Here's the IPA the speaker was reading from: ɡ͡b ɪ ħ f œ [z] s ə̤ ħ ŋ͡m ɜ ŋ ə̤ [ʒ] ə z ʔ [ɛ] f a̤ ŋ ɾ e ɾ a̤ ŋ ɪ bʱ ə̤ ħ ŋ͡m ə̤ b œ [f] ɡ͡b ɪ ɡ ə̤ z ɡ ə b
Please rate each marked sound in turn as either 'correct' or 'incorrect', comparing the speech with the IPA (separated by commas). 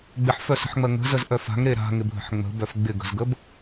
incorrect, incorrect, incorrect, correct